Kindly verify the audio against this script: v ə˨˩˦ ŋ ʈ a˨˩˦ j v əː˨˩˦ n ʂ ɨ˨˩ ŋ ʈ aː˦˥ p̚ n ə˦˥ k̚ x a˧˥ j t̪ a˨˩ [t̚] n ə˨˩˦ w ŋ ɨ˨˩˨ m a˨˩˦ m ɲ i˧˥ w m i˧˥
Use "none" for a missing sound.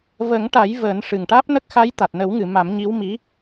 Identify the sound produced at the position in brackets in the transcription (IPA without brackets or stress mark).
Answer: t̚